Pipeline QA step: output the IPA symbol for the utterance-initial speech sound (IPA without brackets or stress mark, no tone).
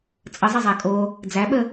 t͡sʼ